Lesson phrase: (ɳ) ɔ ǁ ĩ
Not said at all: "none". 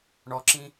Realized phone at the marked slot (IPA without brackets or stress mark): ɳ